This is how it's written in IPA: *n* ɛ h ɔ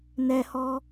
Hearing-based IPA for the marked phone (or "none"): n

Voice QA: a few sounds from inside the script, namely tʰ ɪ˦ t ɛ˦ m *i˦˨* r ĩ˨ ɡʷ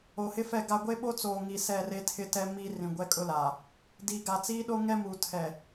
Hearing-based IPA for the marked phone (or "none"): i˦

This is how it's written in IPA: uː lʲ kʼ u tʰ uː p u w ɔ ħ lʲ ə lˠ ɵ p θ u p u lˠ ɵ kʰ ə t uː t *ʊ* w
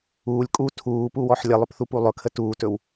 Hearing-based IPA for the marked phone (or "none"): ɵ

